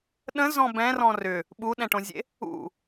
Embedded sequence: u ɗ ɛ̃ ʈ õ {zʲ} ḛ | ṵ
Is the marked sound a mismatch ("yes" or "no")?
no